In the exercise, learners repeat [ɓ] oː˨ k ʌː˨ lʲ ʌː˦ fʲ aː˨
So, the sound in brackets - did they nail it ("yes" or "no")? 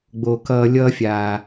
no